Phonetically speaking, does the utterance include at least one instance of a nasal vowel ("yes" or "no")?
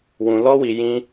yes